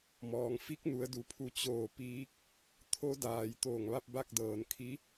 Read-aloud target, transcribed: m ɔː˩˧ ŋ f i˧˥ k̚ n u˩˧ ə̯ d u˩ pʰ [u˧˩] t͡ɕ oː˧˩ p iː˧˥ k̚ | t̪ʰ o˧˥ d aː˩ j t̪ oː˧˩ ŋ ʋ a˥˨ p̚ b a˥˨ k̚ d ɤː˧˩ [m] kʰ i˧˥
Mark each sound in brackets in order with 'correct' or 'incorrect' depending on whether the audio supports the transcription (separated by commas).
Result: correct, incorrect